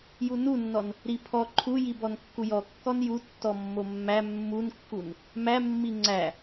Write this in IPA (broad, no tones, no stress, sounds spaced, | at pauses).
j u n u nː ɔ n | ɾ i pʰ ɔ ǃʰ u j i b ɔ n kː u j ɔ kː ɔ n j u tː ɔ mː o mː æ mː u n kː u n | m æ mː i ŋ͡ǀ æ